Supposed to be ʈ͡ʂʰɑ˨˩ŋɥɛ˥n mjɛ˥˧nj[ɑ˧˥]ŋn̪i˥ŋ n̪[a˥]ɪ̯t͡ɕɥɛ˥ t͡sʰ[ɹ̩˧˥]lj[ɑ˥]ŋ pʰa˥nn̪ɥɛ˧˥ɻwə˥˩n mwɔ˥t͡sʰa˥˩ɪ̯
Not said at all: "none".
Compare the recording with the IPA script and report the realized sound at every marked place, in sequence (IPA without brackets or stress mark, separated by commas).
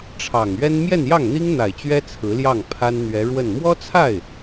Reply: ɑ˥˩, a˨˩, ɹ̩˧˥, ɑ˥˩